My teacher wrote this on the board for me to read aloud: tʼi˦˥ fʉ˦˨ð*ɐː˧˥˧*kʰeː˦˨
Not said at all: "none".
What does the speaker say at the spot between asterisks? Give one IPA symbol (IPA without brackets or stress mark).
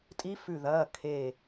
ɐː˧˥˧